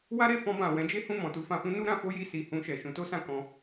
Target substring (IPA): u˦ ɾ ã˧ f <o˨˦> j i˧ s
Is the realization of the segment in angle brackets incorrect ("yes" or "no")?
yes